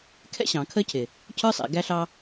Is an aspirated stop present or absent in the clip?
present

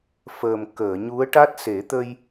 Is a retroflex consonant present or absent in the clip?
present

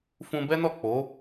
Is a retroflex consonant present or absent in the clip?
absent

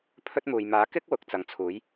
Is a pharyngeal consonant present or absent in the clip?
absent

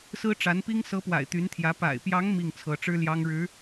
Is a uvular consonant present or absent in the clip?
absent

